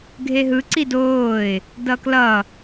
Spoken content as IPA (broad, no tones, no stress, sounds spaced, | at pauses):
ɡʱ e ɦ ɯ ǀ i d oː ɪ̯ | d ʌ k l ʌ